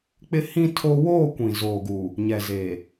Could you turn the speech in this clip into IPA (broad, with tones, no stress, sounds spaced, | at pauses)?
k͡p ɪ˦ h ĩ˦ tʰ o˦ w oː˦˨ kʷ ĩ˨ z oː˨ ɡ uː˨ | ɲ ɛ˨ z eː˨